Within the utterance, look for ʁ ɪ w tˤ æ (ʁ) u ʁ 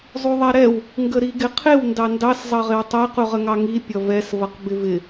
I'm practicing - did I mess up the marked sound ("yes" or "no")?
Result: yes